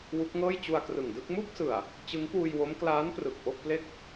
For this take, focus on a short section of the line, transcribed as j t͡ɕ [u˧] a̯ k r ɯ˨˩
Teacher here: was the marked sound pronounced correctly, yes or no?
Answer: yes